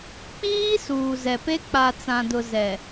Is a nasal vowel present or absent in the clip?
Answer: present